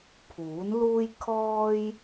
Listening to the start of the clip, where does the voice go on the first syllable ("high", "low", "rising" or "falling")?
rising